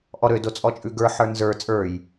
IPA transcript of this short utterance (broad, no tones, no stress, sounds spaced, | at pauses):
ʔ ɔ ɾ ø d o t͡sʼ ɔ t͡ʃʼ ʉ ɡ ə˞ ħ ə˞ n z ə˞ t͡sʼ ə˞ j